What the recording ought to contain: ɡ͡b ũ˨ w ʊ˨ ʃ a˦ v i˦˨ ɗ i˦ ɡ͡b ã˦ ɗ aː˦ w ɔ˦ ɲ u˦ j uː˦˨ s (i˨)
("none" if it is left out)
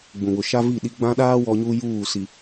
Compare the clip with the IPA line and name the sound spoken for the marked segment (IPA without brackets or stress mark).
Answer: i˨